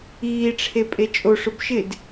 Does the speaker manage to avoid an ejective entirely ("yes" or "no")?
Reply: no